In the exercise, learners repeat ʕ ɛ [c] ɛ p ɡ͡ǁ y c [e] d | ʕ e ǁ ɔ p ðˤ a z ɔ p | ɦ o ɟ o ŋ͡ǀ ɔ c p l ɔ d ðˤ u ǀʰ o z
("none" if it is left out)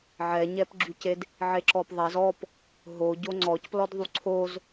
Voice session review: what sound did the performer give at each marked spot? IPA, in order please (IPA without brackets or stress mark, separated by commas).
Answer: ɲ, e